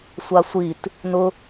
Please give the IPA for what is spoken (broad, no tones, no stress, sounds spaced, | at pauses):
sʷ a sʷ i t | n ʊ